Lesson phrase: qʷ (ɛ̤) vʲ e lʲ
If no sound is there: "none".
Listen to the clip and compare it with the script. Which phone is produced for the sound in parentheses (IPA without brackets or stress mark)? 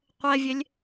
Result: ɛ